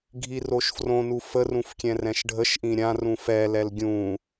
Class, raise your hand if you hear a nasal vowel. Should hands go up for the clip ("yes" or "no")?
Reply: yes